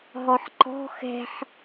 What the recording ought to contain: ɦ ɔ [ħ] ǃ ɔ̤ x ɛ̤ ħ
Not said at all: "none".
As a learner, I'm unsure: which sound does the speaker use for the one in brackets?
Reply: ħ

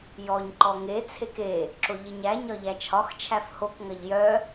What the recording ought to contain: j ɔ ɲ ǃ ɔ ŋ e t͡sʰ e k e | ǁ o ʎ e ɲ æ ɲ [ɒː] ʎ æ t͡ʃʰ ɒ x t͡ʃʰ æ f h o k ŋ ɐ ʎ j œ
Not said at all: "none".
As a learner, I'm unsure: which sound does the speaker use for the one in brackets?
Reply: ɒ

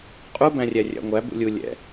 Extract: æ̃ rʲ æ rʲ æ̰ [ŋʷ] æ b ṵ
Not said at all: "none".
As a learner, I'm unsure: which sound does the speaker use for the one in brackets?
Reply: ŋʷ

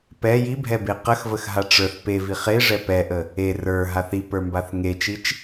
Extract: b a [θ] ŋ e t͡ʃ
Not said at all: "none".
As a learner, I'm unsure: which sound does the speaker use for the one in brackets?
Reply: θ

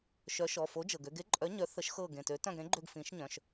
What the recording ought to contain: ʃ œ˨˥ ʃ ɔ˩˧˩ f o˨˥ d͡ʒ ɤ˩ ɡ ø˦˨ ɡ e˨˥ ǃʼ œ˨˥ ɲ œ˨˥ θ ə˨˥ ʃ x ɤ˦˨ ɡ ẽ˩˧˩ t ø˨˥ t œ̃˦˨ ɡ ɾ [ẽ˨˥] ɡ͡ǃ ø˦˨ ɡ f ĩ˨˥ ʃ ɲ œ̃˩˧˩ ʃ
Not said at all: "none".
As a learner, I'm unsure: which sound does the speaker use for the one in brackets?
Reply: ẽ˨˥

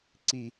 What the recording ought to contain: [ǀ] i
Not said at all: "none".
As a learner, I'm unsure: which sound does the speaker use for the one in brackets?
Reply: ǀ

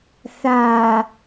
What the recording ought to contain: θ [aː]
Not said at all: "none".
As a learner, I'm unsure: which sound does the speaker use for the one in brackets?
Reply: aː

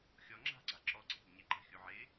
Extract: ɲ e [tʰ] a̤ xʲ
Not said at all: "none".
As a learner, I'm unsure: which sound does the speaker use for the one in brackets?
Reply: ǃ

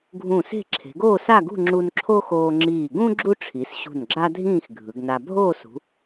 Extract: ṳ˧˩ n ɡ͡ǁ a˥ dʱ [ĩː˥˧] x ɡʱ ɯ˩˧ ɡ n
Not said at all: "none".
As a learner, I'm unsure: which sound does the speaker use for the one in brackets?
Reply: ĩː˥˧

